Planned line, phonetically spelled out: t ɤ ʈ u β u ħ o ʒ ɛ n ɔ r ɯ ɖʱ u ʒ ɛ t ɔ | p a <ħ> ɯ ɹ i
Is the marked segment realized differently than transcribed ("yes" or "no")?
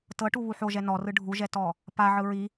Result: yes